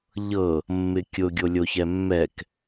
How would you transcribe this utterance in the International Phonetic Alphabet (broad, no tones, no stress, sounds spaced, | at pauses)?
ʎ ɤ | mː ɪ kʲ ʊ ɡʲ o lʲ o ç ɛ mː ɛ k